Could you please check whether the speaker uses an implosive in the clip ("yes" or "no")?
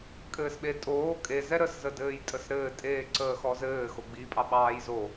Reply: yes